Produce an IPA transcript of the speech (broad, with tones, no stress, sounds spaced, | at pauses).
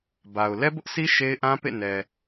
b a˨ ʊ̯ l ɛ˦ b ʊ˦ ʔ s i˦ ʃ e˦ ɪ̯ ʔ ã˦ p ḛ˦˨ n ɛ˨